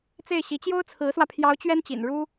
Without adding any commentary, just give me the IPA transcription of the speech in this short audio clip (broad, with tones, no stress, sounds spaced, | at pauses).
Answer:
t͡s e˥˩ ɪ̯ ɕ i˧˥ t͡ɕ j o˥ ʊ̯ t͡sʰ ɹ̩˧˥ s w ä˧ pʰ j ɑ˧˥ ʊ̯ t͡ɕ ɥ ɛ˥ n t͡ɕ ḭ˨˩ n ɻ u˥